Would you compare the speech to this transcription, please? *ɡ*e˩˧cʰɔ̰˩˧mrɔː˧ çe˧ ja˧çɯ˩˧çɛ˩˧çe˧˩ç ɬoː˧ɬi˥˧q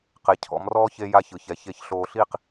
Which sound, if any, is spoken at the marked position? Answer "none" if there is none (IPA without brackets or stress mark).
q